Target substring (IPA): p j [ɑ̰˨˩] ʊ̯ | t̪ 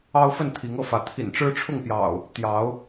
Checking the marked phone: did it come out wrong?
no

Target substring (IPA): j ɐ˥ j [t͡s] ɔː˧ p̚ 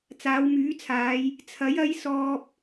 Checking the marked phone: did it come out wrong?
yes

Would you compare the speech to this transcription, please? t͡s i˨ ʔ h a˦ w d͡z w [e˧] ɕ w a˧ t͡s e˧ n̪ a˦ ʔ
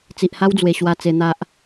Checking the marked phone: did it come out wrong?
yes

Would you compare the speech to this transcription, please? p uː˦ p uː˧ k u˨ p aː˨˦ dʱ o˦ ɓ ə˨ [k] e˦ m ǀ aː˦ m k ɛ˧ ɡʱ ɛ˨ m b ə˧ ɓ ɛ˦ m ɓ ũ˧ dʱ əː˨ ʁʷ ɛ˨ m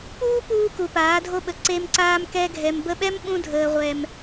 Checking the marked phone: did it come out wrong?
yes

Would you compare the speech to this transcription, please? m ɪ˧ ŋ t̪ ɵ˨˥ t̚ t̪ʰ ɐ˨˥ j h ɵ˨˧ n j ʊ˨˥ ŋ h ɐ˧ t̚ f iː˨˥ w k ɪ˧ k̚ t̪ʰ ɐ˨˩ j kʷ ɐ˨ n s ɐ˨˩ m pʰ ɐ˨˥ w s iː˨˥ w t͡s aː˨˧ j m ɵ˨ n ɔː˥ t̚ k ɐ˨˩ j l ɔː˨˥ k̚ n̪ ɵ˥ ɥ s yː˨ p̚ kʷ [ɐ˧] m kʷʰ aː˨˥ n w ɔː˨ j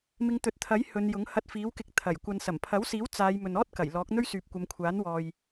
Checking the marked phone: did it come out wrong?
yes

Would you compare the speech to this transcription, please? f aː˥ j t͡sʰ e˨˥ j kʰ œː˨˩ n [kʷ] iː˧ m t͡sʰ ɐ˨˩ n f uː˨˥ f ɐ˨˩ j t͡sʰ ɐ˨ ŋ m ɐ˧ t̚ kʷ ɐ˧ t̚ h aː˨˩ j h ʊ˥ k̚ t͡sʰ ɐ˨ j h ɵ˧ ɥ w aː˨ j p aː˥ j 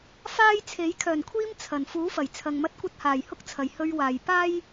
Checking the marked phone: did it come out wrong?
yes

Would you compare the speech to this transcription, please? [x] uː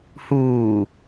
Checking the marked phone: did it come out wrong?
yes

